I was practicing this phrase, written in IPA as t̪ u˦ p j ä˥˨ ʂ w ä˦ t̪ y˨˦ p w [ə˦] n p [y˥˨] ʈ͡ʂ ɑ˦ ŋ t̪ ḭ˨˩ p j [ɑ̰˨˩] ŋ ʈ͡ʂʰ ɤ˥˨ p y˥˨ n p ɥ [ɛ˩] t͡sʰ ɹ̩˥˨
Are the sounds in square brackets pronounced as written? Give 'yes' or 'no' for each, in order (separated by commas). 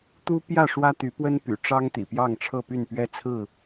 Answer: yes, no, no, no